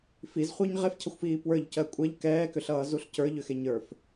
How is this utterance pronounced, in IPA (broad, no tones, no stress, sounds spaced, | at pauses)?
f i z χʷ ə˞ ɲ ʁ e f cʰ ʌ xʷ f iː p w ə˞ ʎ c ɜ kʷʼ ɛ ʎ k ɛː k ʏ ɬ ʌː z u ɬ c ə˞ ʎ ʏ x e ɲ ə˞ f